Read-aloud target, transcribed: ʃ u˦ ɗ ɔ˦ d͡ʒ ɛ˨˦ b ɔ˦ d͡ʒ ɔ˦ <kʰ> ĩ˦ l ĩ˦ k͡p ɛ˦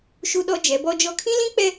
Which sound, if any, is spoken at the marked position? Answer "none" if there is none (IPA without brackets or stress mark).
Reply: kʰ